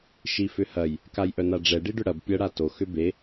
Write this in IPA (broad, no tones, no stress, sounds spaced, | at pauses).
ʃ i f ʏ h ɐ j | k a j ʔ œ n a ɖ͡ʐ ɛ ɖ i ɖ ʏ ɽ ɐ b pʲ ɤ ɽ a t o x ʏ b e